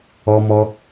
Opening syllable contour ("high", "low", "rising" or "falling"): high